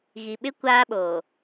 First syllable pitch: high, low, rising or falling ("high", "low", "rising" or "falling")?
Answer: low